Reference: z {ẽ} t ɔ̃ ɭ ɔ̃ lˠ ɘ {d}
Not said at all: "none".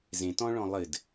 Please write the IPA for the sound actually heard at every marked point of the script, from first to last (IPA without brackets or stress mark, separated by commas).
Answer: ẽ, d